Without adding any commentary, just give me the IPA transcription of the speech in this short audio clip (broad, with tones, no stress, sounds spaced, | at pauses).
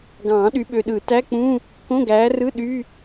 ɡ ɑ̃ː˨˩˦ ɗ y˨˦ ɓ ø˨ ɗ ɯ˨˩˦ t æ˧˥˧ k͡p ũ˧˥˧ | k õ˧˥˧ ɡ æː˨˦ r ɯ˧˥˧ ɗ y˧˥˧